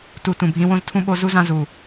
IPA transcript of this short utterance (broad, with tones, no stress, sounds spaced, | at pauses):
t u˨ t ũ˨ bʱ ĩ˧ w õ˦ z tʰ ũ˦ ɓ o˧ z u˦ z ã˧ z u˨